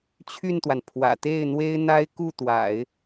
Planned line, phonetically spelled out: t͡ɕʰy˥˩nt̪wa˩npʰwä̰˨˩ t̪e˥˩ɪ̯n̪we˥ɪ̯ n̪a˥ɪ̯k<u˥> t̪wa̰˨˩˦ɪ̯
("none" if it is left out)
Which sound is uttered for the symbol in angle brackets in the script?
u˥˩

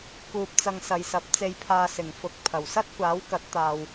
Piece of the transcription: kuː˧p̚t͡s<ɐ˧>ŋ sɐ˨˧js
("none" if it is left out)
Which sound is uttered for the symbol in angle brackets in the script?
ɐ˧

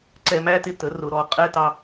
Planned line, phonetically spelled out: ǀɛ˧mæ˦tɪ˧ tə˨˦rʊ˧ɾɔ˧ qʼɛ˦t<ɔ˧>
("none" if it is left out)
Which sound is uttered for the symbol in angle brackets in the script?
ɑ˧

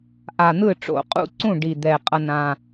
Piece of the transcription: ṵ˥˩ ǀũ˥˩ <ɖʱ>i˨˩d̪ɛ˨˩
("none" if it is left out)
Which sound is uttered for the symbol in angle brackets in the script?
ɖ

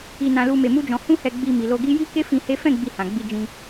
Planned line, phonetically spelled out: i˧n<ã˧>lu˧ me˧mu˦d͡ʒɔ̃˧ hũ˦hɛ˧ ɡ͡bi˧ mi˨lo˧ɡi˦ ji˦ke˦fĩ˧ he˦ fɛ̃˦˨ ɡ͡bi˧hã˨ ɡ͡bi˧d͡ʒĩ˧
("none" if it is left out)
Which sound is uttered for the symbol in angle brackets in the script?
ã˧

